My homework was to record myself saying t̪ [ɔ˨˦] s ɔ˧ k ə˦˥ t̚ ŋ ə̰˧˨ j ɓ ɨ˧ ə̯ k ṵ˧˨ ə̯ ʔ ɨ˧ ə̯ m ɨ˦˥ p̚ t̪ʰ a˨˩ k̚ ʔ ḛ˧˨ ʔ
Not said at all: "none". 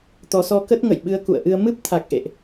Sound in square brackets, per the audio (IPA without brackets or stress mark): ɔ˨˦